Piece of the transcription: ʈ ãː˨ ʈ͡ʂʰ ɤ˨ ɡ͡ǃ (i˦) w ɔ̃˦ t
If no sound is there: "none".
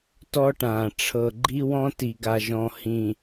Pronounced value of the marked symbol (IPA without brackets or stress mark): i˦